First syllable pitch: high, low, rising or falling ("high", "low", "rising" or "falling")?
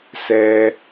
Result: low